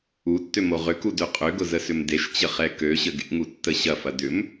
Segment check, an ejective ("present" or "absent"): present